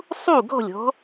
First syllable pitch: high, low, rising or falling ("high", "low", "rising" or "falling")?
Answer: falling